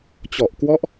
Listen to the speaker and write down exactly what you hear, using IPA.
t͡ɕ ɔ˨˩ ʔ k w ɔ˦˥ ʔ

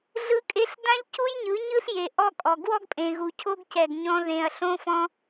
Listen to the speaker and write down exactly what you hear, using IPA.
ɮ ɯ˧ kʼ e˧ ɬ d ã˧ ʎ c u˧ j ɲ ɯ˨˦ ɲ ɯ˦ ɬ j e˨ ʔ ɔ˦ kʼ ɔ˨ ɡ w ɔ˦ ɡ pʼ ẽ˨ ɣ u˨ cʰ o˦ ɡ c ɛ˨ ɡ ɲ ɔ̃˧ ð ẽ˨ ɐ̯ ɬ õ˧ f ɔ̃˧

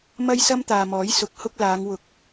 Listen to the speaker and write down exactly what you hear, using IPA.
m ɐ˥ j s ɐ˥ m t̪ aː˨ m ɔː˨˥ j s ʊ˨˥ k̚ h ʊ˥ k̚ l aː˨˧ ŋ w ʊ˨˥ k̚

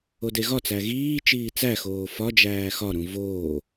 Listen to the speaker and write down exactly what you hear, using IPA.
o d e ɣ ɒ t͡s æ ɣ iː t͡ʃ iː t͡s æ x oː f ɒ d͡ʒ æː x ɒ ɾ ũ v oː

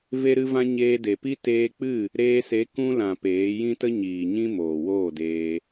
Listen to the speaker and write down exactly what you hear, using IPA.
v e˧ ɾ ɨ˧ v ã˧ ɲ eː˧ d e˨ p i˦ t eː˧ k͡p ɨ˦˨ | ɾ eː˧ s e˨˦ k ũ˧ l ã˨ p eː˨˦ j ĩ˦ t ə˦ ɲ iː˨ ɲ ĩ˧ m oː˨ w oː˦˨ d eː˧

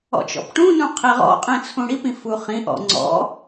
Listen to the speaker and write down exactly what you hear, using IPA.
ɔ̰ t͡ʃ ɔ̰ p ʈ ũ n ũ qʰ i ʁ ɔ̰ qʼ ĩ t͡sʰ ũ ɽ i p ĩ f u χ ĩ ʔ ɔ̰ ŋ͡ǀ ɔ̰

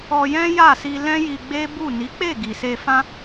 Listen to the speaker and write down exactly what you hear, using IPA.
ɔ˧ j ɛ̃˦ j a˦˨ s i˧ l ɛ̃˦ j i˧ ɡ͡b e˦ b u˦˨ n i˨˦ k͡p e˦˨ ɡ i˨ s e˧ f ã˦

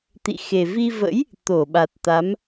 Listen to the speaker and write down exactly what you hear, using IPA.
t̪ ḭ˧˨ x e˨˩ v i˧ v ə̰˧˥ j | t̪ o˧˩ ɓ a˨˩ t̚ t̪ a˨˦ m

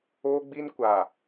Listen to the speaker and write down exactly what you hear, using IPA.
oː˦ ɡ͡b i˦ n kʷ a˨

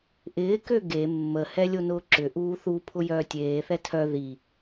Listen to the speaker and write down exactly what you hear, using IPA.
ʔ ɪː k ø ɡ e mː ə h ɛ lʲ o n ʊː ǁ ʏ ʔ uː θ u pʰ ʊ j œː tʲ eː θ ɛ tʰ œ ð i

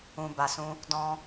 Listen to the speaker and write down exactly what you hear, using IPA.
ũ˧ b a˧ s ũ˦ | d ɔ̃˧

